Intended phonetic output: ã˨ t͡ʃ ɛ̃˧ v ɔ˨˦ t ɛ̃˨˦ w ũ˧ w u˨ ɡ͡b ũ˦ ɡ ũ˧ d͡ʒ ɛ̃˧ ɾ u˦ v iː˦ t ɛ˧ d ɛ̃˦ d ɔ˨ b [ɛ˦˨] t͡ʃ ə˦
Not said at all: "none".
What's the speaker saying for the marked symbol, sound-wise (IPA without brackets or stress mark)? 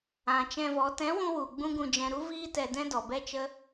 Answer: ɛ˦